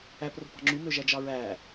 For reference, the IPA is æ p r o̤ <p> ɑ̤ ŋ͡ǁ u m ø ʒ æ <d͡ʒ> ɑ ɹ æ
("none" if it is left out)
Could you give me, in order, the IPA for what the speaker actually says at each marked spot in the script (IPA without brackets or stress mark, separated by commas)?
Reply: p, d͡ʒ